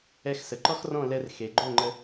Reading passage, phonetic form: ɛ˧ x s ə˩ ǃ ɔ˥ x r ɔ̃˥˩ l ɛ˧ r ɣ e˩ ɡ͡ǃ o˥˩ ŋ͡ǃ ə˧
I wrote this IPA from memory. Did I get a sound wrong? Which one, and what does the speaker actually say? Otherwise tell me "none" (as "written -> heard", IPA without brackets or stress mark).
ɣ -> x